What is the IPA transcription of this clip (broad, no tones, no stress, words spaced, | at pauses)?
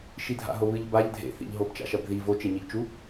ʃidʱa̰ɦoβɨʎ baʎ dʱḛθḭʎɦob t͡ʃa̰ʃɐbði vot͡ʃeɲiʎt͡ʃu